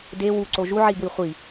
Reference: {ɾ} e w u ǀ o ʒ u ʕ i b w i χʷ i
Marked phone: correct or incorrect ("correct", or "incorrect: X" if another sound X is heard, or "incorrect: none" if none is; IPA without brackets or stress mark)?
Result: incorrect: d